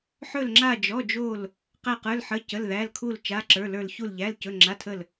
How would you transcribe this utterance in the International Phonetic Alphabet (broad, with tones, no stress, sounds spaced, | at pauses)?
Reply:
ħ ɵ˥˧ l ŋ͡ǁ a˥˧ d͡ʒ ɔ˧˥˧ d͡ʒ o˥˧ l | q æ˥˧ q ə˞˧˥˧ l ħ ə˧˥˧ c ə˧˥˧ l ð æ˧˥˧ l kʰ u˥˧ l t͡ʃ a˧˥˧ ǁ ə˞˧˥˧ l ə˞˥˧ l ç u˥˧ l ʎ æ˧˥˧ l c ɵ˧˥˧ ŋ͡ǁ a˧˥˧ tʰ ə˥˧ l